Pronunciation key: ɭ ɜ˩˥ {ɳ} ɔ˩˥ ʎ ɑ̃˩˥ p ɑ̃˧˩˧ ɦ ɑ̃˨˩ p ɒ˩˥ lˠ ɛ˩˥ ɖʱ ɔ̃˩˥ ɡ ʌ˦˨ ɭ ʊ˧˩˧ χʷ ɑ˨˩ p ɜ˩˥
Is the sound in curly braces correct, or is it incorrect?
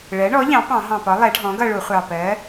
correct